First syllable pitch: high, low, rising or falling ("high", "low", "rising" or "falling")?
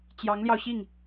rising